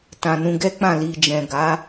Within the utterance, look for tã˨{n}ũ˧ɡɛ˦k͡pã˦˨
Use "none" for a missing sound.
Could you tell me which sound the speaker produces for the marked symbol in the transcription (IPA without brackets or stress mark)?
n